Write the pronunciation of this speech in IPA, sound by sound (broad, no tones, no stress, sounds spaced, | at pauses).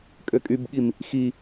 kʼ ø kʼ y b ɠ i m | x i